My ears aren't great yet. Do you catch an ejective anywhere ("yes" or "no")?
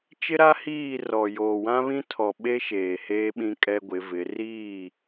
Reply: yes